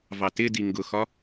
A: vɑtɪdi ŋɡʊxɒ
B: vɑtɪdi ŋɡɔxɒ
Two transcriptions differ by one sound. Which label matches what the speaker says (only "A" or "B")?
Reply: A